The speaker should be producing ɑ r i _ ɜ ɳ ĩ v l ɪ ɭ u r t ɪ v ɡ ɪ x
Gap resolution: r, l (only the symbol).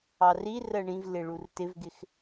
r